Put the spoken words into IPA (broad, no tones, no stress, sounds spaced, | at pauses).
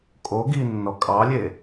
kʼ o ɡ i nː ɔ kʼ ɑ lʲ e